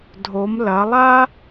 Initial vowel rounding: rounded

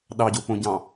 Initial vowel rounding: unrounded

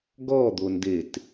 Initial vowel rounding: rounded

